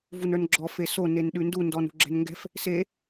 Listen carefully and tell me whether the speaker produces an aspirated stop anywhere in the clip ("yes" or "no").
no